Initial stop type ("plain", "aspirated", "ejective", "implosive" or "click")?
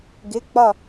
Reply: plain